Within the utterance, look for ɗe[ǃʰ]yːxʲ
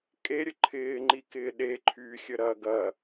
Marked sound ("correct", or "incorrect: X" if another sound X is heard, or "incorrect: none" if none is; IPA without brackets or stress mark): correct